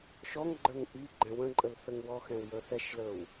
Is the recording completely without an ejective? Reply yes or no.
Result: no